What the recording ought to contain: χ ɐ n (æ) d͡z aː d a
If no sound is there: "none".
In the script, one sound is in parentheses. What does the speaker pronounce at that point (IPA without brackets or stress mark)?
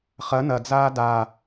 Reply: ɐ